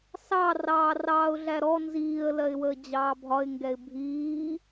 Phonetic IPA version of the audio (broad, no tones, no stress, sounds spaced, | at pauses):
s ɑ r ɑː r ɑː ʊ̯ ɮ æ ɾ ɔ n z iː ə̯ l ɜ ɪ̯ w əː d͡ʑ ɑː bʱ ɒ ɪ̯ ŋ ɡ ɛ ɪ̯ bʱ iː